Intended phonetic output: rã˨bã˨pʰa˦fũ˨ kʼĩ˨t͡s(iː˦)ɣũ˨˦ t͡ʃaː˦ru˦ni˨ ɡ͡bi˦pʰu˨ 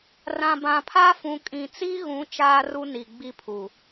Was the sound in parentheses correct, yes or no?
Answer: no